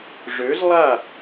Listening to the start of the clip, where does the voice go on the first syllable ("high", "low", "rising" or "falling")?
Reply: rising